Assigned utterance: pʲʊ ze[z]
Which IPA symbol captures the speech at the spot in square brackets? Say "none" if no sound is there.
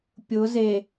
none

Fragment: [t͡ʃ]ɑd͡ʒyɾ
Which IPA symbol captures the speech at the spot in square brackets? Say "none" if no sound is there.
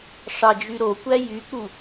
ʂ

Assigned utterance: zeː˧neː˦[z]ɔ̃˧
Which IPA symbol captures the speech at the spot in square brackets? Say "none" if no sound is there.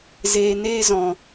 z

